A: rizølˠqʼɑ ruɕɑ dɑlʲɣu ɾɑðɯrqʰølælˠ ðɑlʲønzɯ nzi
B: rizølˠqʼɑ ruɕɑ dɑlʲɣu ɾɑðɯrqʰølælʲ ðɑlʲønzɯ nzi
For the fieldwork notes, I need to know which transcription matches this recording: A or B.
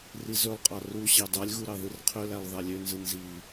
A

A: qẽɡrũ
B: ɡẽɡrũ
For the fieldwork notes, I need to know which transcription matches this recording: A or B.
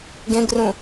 B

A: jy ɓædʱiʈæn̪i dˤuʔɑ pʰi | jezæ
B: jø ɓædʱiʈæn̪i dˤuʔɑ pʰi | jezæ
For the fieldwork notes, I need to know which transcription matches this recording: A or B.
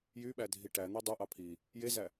A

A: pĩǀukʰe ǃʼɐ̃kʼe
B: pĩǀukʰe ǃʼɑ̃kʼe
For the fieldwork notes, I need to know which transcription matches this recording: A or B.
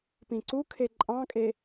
B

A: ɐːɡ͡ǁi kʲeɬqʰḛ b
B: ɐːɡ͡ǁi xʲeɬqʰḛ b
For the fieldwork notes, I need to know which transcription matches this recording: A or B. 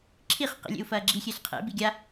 B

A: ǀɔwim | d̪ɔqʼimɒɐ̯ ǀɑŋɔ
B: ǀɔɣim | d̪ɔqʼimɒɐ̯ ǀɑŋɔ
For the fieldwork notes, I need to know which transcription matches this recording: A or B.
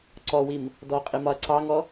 A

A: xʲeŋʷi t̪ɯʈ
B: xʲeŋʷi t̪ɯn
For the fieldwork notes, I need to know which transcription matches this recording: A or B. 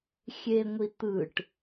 A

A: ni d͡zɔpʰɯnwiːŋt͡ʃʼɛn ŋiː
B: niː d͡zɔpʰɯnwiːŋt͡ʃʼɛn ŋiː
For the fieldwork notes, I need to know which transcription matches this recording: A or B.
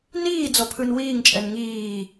B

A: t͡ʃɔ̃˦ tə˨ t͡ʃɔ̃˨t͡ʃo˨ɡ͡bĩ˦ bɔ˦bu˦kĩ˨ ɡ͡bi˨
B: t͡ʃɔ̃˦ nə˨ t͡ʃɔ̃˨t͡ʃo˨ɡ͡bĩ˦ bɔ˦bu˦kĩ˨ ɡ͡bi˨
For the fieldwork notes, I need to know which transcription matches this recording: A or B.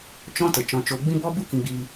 A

